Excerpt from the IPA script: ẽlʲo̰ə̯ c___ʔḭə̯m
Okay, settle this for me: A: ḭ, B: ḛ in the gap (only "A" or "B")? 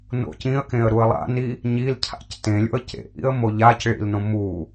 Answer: B